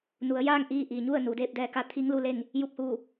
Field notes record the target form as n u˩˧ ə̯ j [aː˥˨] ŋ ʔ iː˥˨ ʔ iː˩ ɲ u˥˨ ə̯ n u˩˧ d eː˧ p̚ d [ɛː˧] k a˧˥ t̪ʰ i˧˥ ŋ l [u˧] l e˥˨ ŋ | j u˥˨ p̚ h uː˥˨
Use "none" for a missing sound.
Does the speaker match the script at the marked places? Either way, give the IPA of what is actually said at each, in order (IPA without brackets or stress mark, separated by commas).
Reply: aː˥˨, ɛː˧, u˧